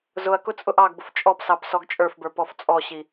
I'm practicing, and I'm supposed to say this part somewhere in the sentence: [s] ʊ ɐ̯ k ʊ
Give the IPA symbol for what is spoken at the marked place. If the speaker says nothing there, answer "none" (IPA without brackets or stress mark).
z